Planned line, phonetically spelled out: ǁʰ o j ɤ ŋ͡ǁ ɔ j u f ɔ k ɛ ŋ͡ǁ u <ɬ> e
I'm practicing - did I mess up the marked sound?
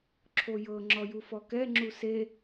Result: yes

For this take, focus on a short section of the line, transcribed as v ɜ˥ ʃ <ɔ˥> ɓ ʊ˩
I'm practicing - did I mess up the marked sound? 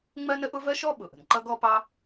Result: no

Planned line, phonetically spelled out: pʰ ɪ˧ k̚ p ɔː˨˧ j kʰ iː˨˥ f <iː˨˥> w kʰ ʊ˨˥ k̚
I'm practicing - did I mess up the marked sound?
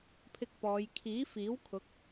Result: no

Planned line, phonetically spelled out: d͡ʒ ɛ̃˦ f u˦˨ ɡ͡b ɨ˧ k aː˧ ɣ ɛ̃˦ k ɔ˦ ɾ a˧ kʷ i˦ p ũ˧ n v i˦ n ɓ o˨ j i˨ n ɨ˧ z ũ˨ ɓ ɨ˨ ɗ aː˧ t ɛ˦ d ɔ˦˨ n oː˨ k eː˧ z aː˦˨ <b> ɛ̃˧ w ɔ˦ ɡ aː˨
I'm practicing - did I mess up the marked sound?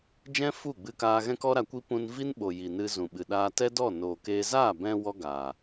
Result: no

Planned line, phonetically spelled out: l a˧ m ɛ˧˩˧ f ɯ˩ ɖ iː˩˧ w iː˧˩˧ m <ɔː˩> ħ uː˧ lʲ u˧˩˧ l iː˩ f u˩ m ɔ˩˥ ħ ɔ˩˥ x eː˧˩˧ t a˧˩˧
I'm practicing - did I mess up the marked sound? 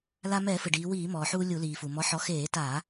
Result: no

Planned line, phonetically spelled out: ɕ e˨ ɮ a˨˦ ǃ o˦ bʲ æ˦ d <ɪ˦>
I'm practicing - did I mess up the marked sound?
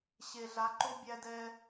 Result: yes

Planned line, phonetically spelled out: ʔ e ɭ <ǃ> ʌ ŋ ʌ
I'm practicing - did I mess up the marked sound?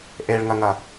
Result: yes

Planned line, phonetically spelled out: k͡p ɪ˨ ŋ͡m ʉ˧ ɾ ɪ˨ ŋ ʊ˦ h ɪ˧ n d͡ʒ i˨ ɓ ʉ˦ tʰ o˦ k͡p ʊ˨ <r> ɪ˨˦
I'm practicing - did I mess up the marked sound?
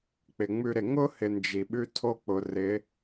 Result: no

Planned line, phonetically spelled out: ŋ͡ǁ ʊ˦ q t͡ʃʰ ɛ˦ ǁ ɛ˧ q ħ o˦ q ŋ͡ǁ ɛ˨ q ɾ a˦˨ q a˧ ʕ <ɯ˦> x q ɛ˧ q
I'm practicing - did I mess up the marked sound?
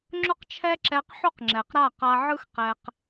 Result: no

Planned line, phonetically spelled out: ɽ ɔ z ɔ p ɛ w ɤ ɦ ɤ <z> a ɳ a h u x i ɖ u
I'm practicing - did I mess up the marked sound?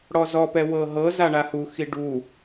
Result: no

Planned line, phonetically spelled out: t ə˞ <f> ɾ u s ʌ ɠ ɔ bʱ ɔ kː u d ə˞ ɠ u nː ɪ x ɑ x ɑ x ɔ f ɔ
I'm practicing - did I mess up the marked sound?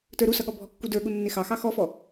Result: yes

